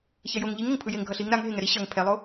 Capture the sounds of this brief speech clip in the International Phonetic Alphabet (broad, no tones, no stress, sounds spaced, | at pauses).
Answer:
ç ɛ j o ŋ ʎ i ŋ ʌ ŋ pʰ ɯ j e ŋ ɡʱ ʌ ɬ i ŋ ɾ a ŋ ɦ e ŋ ɛ ɾ i ɕ ʌ ŋ pʰ ɛ lˠ o